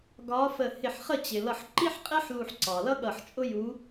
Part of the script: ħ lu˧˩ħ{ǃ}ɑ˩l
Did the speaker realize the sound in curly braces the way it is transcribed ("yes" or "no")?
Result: no